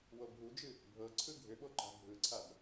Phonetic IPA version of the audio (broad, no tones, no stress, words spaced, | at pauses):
wobʱud͡ʒɨ | bʱɤǀʰɯ ɡʱʏɓoǃa̤ bʱɯǀʰab